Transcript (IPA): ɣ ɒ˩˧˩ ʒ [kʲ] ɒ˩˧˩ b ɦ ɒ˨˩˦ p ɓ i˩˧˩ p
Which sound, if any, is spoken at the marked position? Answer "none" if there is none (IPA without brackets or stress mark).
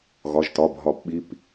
t